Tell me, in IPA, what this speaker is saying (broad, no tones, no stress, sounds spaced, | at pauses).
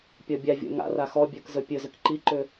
pʲ ɔ bʲ a vʲ o̰ ŋ a̰ r a x ɔ bʲ ə˞ k z ɵ pʲ ɵ z ʏ k ǃ i ǃ ʏ